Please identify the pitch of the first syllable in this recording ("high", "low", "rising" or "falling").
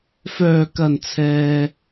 low